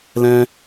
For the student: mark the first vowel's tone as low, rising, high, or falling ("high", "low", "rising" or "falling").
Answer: high